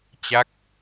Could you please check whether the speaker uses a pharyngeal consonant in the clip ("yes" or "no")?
no